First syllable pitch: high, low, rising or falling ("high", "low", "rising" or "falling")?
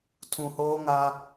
low